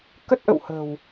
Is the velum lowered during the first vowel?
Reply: no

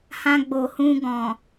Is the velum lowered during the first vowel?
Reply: yes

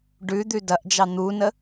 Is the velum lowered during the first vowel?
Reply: no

